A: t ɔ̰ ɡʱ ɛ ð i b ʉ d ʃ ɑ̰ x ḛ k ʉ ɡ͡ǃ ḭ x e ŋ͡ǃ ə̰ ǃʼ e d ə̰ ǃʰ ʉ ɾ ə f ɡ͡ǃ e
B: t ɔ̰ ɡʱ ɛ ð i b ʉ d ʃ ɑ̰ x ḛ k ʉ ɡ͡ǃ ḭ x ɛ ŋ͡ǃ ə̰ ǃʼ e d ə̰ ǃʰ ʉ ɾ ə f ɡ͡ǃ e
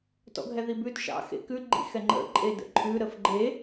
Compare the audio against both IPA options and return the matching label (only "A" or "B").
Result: B